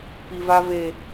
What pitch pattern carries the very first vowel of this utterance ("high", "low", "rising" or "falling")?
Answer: high